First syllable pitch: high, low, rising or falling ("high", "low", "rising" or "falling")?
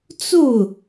falling